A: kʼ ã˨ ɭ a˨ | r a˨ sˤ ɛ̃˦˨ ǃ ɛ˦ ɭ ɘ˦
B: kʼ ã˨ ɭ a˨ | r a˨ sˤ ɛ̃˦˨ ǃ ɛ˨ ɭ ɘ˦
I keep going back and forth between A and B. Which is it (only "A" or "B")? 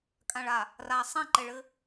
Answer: B